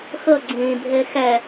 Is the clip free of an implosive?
yes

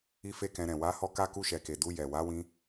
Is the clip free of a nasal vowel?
no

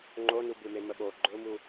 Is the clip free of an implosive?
no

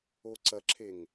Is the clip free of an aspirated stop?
no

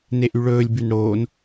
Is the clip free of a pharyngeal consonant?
yes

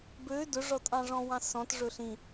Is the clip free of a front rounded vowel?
no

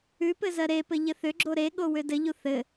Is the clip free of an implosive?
no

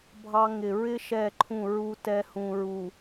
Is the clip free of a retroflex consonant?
yes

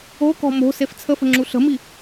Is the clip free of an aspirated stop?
no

